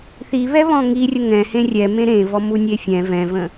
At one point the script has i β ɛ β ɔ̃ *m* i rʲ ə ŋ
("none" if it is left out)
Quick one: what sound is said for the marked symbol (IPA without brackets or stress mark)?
ŋ